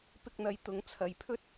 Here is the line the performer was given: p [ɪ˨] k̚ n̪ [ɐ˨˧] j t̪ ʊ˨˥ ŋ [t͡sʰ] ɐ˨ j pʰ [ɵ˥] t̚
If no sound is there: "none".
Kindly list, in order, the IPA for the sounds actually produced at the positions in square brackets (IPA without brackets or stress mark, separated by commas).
ɪ˧, ɐ˨˧, t͡sʰ, ɵ˥